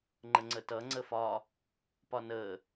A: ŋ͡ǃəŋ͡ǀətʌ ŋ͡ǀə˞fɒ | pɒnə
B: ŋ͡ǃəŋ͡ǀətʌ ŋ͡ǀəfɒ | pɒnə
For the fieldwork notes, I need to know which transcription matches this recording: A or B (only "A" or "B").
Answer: B